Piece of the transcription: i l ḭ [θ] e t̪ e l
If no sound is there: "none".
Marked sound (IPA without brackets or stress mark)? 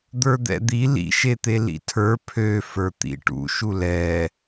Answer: ʃ